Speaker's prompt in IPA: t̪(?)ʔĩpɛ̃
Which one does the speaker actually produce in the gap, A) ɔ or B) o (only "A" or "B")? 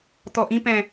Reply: A